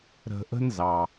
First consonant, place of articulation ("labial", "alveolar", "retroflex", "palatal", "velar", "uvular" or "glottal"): alveolar